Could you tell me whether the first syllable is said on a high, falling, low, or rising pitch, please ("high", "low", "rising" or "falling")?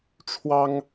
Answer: high